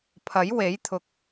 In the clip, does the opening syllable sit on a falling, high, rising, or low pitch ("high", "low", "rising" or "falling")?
rising